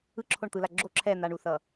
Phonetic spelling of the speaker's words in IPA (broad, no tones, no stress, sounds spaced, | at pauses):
ɯ ǁʰ o ɳ t̪ ɯ l a ɡ͡ǁ o ǁʰ ɛ n̪ a ɳ u θ ʌ